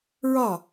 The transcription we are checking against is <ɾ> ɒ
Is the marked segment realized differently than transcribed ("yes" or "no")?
yes